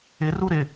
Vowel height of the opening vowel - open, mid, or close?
close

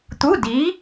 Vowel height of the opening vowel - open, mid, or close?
close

